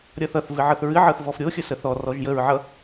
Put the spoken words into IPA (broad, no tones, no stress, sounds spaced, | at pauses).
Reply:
ɾʲ ʌ θ ʌ θ v ɨ ʕ ɤ θ ɹ ɨ ʕ ɤ θ v ɔ f ɾʲ o xʲ ə s ə θ ɔ r ɔ ʒ j ə ɹ ʕ ʌ